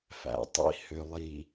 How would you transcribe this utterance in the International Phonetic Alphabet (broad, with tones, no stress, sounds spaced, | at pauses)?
f æ̰˨ tˤ ḭ˦ h ø˨ lˠ i˨